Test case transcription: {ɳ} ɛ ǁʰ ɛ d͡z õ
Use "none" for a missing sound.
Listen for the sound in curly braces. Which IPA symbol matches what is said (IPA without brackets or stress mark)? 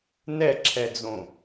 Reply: n